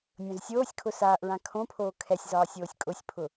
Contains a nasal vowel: yes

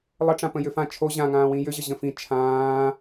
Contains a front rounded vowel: yes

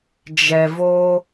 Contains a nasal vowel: no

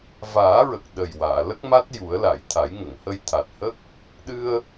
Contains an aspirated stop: yes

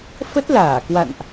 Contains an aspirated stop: no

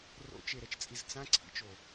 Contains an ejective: yes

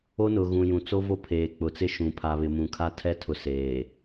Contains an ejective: no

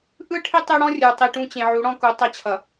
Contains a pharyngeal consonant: yes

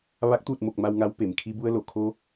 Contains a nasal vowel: no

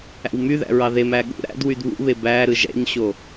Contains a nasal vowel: no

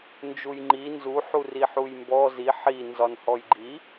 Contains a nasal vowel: no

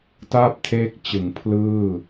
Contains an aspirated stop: yes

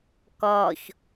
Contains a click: no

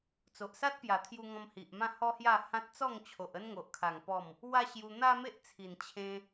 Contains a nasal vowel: yes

